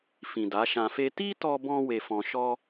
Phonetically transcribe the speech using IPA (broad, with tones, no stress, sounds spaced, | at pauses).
f ĩ˨ d a˨˦ ʃ ã˧ f e˦ t i˦ t ɔ˧ b ɔ̃˧ w e˧ f ɔ̃˧ ʃ ɔ˦